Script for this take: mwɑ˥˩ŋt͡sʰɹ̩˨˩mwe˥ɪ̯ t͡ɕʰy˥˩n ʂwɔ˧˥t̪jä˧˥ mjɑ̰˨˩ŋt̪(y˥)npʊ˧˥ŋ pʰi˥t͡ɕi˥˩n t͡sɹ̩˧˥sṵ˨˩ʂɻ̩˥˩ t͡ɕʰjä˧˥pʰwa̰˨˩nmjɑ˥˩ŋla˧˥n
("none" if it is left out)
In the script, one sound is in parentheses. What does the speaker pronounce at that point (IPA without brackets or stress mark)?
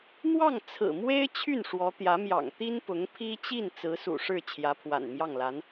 i˥